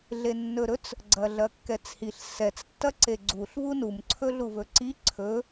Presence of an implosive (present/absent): absent